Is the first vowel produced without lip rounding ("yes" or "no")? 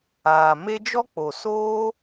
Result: yes